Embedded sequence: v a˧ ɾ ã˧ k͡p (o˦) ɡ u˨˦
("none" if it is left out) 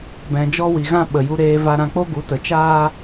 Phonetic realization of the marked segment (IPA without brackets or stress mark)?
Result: o˦